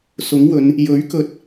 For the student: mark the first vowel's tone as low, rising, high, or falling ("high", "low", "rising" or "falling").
rising